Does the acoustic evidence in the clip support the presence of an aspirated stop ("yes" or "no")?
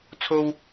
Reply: yes